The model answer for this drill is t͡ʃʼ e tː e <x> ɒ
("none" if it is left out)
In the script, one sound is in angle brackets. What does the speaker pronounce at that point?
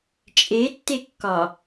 kː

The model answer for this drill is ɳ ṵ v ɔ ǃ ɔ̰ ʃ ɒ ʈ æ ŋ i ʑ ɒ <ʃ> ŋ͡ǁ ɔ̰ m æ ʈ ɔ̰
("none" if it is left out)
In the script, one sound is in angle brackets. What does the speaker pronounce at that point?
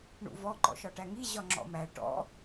none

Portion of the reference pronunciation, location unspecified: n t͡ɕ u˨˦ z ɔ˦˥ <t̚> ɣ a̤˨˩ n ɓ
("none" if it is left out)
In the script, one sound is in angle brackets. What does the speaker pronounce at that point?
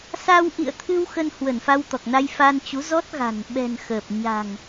t̚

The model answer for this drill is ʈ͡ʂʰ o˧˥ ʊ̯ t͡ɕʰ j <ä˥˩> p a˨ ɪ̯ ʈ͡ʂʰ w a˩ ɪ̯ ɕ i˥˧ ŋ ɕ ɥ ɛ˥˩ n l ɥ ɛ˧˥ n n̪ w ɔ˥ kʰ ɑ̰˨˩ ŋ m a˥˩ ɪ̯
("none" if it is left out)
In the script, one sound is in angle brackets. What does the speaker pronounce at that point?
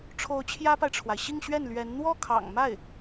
ä˥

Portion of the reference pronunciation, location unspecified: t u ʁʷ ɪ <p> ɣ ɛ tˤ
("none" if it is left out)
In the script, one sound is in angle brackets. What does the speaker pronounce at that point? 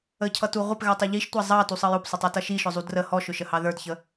p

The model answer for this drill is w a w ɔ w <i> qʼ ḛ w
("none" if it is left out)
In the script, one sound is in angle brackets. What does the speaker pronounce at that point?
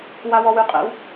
y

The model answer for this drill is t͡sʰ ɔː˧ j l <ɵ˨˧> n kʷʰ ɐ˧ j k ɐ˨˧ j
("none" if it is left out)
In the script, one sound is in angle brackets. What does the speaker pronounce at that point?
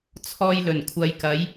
ɵ˨˩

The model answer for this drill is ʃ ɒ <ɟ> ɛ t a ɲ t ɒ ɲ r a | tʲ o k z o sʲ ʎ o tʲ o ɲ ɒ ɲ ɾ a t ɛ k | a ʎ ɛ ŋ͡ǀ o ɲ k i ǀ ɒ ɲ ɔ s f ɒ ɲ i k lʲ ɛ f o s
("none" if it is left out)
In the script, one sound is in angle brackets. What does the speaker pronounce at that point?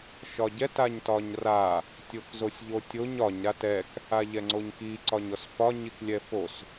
ɟ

